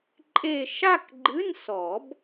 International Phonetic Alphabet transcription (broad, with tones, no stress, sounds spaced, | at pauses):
ǃʼ e˥˧ ʃ a˥˧ k ɡ͡ǃ ɨ˧˥˧ n s ɔ˨˩˦ b